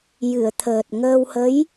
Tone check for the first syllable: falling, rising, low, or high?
low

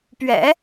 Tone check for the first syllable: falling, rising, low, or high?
low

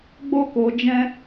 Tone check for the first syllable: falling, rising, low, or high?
high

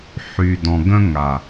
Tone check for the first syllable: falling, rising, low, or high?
low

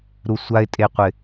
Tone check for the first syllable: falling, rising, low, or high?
low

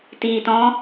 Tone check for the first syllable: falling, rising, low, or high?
low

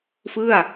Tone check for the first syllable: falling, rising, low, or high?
falling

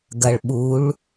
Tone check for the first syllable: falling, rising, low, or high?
low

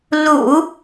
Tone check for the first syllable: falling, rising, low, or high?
low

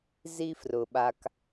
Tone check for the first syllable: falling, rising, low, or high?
high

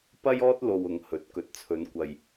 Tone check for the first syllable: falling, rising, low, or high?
high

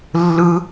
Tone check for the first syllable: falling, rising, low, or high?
high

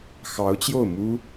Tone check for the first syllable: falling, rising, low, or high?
rising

